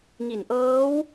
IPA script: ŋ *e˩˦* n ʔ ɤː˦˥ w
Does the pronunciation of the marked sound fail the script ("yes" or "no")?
yes